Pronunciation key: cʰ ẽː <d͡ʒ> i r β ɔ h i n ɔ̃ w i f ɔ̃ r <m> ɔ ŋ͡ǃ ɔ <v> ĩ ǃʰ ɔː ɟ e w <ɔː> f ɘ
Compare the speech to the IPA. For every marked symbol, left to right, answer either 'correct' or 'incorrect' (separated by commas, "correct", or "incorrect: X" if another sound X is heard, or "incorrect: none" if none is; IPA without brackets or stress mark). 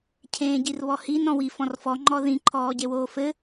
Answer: incorrect: ɟ, incorrect: f, incorrect: ð, incorrect: oː